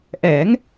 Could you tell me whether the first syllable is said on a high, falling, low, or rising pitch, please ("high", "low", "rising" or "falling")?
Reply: rising